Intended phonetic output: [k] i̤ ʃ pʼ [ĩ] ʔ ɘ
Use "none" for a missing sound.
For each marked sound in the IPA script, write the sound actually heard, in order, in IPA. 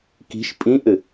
k, ĩ

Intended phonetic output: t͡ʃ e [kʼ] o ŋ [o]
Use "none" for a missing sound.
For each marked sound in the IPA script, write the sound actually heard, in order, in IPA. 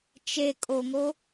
kʼ, o

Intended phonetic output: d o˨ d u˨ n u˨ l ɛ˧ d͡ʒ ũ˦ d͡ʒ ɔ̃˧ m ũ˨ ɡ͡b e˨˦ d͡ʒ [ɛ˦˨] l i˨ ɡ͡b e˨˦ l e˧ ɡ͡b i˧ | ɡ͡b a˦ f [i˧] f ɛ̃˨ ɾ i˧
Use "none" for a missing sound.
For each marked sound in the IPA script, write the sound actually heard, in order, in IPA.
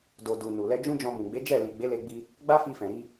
ɛ˦˨, i˧

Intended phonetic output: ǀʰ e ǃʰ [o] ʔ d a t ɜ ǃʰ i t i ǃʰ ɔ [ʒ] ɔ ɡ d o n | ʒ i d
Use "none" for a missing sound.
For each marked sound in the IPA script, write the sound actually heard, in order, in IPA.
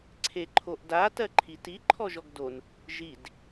o, ʒ

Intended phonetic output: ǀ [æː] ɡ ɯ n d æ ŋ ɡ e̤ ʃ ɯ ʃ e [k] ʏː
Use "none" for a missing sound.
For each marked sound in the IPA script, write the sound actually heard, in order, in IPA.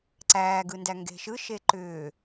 æː, ǃ

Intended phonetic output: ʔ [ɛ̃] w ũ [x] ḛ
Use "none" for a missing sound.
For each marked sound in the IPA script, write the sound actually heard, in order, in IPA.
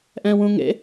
ɛ̃, ŋ

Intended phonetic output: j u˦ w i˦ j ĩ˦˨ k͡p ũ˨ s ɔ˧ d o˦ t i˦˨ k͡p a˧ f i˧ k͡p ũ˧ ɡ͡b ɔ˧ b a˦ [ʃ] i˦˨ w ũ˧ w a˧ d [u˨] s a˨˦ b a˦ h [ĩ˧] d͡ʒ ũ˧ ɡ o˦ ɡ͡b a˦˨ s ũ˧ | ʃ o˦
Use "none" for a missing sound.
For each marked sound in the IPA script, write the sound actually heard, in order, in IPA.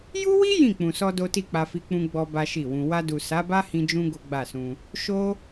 ʃ, u˨, ĩ˧

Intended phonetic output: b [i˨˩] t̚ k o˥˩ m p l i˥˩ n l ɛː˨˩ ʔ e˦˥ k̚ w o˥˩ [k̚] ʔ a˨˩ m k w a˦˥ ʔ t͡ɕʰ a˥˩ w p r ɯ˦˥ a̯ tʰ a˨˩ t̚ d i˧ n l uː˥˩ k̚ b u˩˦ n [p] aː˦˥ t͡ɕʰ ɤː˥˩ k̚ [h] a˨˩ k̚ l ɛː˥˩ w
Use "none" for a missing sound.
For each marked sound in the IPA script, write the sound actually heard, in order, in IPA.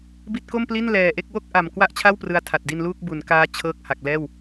i˦˥, k̚, k, h

